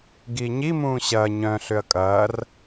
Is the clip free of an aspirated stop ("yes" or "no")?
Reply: yes